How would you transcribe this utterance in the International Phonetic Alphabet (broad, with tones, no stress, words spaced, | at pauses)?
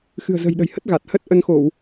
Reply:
xɨ̤˨˩ə̯zə̤˨˩jɗə̤˨˩jhə˦˥t̚ ɣa˨˩t̚ hə˦˥t̚ʔə˧nxo˧˩˨w